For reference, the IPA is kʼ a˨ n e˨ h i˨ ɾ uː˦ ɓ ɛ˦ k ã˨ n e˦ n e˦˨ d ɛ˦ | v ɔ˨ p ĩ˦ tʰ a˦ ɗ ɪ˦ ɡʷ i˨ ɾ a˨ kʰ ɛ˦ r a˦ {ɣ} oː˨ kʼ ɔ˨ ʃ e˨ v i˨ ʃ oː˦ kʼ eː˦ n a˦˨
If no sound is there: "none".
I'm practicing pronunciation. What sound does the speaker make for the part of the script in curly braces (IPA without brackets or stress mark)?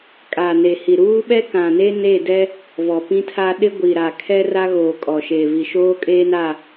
ɣ